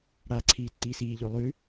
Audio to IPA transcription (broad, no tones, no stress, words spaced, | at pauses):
ɽaːǀʰiːtːiːsiː ʎolˠʉ